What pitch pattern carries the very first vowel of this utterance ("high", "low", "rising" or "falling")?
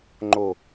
falling